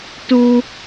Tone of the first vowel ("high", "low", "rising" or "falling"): high